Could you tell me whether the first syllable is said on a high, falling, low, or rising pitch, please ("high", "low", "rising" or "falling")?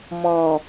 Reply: low